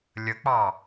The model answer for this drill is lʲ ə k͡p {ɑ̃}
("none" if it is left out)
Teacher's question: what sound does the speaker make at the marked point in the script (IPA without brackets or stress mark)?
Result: ɑ